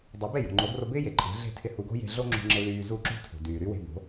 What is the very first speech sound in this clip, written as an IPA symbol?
dˤ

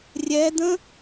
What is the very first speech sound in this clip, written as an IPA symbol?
rʲ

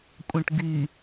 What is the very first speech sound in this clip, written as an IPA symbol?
kʷʼ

